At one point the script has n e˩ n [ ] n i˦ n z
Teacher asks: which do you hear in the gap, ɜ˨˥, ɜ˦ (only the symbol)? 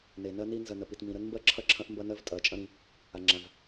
ɜ˦